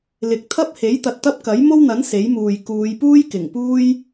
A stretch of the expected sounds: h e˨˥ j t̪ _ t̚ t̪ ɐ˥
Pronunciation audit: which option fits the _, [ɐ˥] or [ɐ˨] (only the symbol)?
ɐ˨